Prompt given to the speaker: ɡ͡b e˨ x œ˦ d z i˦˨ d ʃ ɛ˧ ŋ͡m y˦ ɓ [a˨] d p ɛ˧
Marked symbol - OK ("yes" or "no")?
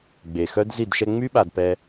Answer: yes